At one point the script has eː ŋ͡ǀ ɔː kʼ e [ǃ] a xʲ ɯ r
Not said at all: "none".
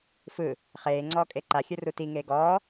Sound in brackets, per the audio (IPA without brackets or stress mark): ǃ